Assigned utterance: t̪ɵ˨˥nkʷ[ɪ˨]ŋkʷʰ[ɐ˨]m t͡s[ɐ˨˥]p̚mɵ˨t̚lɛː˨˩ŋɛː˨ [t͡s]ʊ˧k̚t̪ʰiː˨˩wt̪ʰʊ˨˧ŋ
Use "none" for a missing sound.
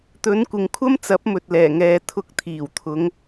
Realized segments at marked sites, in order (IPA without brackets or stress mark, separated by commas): ɪ˨, ɐ˥, ɐ˨˥, t̪ʰ